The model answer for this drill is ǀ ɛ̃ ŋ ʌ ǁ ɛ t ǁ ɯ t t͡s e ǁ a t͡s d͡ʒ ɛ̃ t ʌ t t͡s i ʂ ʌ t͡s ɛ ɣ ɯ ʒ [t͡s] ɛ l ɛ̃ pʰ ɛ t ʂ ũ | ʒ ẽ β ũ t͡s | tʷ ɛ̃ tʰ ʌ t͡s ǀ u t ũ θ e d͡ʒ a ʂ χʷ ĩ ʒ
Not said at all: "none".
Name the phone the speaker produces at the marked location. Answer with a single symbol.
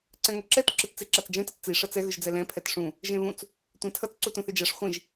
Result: d͡z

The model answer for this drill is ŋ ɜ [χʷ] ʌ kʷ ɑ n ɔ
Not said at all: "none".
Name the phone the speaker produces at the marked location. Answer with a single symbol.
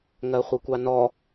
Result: χʷ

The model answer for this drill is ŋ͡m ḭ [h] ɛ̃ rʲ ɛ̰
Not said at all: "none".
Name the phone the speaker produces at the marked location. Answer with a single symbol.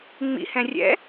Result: h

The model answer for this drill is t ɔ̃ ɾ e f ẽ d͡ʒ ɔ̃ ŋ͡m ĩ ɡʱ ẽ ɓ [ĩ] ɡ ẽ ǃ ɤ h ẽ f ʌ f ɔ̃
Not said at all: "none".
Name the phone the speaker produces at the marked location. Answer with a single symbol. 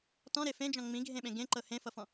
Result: ẽ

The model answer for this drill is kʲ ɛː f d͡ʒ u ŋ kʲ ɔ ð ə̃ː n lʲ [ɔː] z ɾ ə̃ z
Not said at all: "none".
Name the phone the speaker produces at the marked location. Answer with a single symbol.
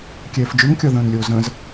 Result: oː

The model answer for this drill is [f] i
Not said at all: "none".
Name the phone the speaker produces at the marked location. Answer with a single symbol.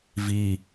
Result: v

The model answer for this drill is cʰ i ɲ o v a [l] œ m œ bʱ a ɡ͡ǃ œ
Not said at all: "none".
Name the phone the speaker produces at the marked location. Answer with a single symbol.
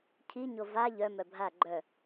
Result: ʎ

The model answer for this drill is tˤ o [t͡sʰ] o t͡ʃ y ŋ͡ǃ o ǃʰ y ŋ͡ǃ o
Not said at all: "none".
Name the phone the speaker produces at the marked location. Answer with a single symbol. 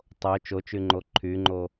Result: t͡ʃ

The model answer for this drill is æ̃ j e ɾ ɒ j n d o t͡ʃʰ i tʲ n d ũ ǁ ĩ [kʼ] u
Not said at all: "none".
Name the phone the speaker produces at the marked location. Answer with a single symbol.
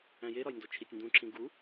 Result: ɡ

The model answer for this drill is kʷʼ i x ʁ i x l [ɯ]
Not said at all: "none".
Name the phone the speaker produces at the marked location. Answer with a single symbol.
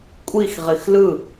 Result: ɯ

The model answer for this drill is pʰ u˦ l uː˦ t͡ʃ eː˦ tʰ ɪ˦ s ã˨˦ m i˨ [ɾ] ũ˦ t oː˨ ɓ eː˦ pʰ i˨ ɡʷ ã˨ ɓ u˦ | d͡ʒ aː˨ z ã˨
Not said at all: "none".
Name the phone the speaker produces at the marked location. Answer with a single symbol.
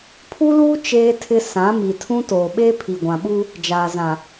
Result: tʰ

